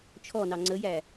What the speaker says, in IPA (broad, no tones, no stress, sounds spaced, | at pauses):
t͡ʃʰ ɔ n ɑ ŋ͡ǀ ə j æ